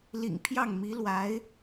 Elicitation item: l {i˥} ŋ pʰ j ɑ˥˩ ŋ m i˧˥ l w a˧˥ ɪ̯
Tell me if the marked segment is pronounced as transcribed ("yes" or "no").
no